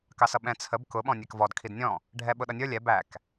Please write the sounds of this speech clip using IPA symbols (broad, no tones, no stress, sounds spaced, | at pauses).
k ɑ s ʌ ɓ ɛ̃ t͡sʰ ə b k ʊ ɓ ɔ̃ nʲ ɛ k v ɔ d kʰ i d nʲ ɔ̃ | ɖʱ ɛ ɓ ʊ ɗ ʌ nʲ ə˞ lʲ ɛ b æ k